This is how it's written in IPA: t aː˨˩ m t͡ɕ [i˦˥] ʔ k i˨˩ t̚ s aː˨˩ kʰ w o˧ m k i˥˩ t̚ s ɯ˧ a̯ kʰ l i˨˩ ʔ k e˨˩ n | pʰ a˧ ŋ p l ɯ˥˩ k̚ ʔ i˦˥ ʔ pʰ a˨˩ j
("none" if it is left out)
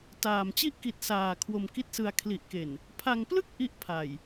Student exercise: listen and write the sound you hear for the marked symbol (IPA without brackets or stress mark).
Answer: i˦˥